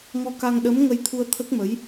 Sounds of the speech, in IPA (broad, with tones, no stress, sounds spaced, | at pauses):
ŋ ɔ˧ k a˧ ŋ ɗ ə˧˥ m ŋ ə˧ j t̪ʰ u˧ ə̯ t̪ʰ ə˦˥ k̚ m ə˧˥ j